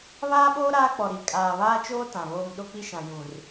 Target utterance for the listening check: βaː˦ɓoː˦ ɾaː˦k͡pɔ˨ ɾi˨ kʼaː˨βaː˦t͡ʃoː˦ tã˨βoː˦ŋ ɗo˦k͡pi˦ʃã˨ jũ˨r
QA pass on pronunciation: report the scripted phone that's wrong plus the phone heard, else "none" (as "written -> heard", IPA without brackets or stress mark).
none